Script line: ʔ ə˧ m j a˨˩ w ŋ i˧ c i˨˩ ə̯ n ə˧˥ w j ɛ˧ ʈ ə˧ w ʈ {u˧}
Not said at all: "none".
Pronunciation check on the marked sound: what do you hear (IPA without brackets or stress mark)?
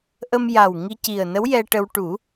u˨˩˦